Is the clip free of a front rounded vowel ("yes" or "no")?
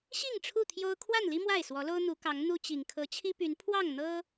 no